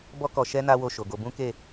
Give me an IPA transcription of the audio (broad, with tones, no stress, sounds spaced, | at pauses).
b ɔ˧ k ɔ˨ ʃ ɛ˧ n a˦ w o˦˨ ʃ o˨ ɡ o˧ b ũ˦ k e˦˨